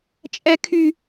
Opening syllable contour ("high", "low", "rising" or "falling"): high